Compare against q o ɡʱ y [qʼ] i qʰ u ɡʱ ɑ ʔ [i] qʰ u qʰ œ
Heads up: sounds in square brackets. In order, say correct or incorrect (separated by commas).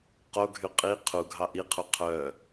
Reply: correct, correct